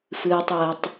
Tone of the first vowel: low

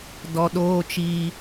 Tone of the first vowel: low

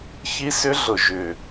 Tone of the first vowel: high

